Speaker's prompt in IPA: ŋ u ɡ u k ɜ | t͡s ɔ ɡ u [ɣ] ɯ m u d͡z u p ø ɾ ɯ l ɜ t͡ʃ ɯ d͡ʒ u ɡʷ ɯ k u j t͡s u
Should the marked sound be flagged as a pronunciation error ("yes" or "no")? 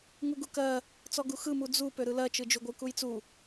yes